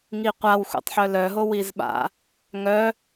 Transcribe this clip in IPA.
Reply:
ŋ i qʷ a w xʷ ɛ̰ tˤ ħ œ l œ ɦ o w i z ɓ a̰ | ŋ œ

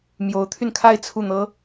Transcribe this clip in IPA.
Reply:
m j o˧˥ ʊ̯ t̪ʰ y˧ n kʰ a˥˧ ɪ̯ t͡sʰ u˥˩ n̪ ɤ˥

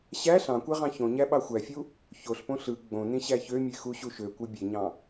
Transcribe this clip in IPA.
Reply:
ɕ æ ɬ ɑ̃ kʷ e ʁ ɑ̃ ç õ ɲ æ ɓ ɑ xʷ æ fʲ u | ç o ɬ p õ ɬ ɯ ɡ͡b õ n ĩ ɕ æ ç ø mʲ e x u ɕ u ʃ ø kʷ ɯ bʲ e ɲ ɑ̃

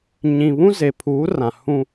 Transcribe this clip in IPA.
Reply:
ɲ ĩ˨ β ũ˦ z e˨ pʰ uː˨˦ r ã˨ h ũ˦

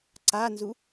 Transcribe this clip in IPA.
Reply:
ǀ a n z u

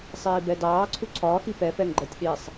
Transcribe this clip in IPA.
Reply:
sˤ iː b ɛ d ɑː ǀʰ u ǀʰ ɒː x i p ɛ f ɛ ŋ ɡ͡ǃ ɜ tʲ ɗ i sˤ

